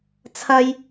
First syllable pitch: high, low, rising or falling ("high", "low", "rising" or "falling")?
high